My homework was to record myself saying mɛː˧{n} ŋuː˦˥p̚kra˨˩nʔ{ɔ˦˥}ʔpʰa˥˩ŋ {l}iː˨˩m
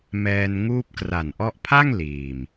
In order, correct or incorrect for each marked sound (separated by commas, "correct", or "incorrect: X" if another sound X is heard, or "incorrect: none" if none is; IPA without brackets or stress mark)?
correct, correct, correct